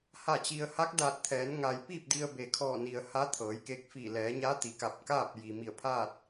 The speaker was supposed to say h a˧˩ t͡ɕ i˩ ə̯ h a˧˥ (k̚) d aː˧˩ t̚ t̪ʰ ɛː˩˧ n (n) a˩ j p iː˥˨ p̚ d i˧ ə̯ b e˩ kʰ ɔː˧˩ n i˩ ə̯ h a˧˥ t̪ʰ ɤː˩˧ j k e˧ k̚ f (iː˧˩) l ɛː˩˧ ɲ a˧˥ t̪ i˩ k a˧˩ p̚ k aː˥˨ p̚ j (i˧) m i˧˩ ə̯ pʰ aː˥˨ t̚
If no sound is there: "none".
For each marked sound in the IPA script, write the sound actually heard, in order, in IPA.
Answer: k̚, ŋ, iː˧˩, i˩

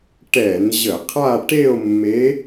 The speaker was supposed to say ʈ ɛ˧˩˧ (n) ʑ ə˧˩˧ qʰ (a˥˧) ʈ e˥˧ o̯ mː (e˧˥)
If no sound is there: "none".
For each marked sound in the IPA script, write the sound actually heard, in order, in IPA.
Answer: n, a˥˧, e˧˥

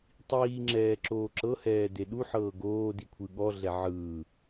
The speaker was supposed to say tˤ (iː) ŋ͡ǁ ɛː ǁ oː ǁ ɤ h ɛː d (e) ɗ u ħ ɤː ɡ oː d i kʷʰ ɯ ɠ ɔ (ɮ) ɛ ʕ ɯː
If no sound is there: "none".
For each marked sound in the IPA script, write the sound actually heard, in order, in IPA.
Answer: iː, e, ɮ

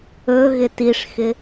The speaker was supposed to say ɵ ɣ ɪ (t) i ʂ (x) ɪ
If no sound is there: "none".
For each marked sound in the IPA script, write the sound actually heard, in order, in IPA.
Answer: t, x

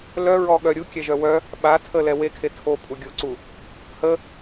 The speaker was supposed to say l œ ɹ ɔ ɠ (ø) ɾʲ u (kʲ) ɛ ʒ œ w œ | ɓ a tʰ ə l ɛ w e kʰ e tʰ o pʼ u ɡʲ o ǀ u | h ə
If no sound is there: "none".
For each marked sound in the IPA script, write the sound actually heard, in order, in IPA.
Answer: œ, kʲ

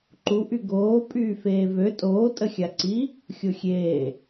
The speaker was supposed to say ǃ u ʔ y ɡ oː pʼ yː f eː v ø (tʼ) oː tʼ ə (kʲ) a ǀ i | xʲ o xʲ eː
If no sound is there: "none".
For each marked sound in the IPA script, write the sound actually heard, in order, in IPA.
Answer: tʼ, xʲ

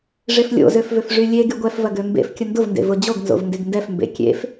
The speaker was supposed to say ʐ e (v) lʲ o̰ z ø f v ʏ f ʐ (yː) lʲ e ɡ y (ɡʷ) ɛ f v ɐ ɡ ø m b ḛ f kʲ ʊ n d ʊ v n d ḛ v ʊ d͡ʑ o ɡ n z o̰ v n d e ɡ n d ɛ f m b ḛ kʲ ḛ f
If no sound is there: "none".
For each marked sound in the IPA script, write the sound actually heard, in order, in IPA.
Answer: f, y, ɡʷ

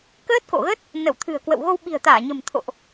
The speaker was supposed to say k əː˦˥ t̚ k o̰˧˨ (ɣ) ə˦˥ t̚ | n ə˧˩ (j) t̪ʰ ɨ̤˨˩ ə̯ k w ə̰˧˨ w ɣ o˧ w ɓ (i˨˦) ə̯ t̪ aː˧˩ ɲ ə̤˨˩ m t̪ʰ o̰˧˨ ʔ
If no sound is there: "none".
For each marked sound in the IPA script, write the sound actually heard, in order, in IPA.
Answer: ɣ, w, i̤˨˩

